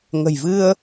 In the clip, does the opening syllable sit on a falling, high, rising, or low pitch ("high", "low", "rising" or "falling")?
low